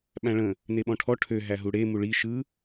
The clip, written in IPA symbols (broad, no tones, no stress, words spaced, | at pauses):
ɓæ̃ɭə̃ | neɓɔ̃ʈʰɔ ʈʰø ɦæɦuɽe muɭi ʃɯ